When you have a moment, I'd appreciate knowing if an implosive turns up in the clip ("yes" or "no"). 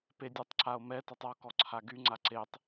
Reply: no